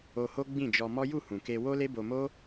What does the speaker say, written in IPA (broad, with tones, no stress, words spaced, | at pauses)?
o˧ho˦ ɡ͡bĩ˦˨d͡ʒɔ˧ mɔ˦ ju˦˨hũ˨ke˧ wo˦le˦bo˧mo˦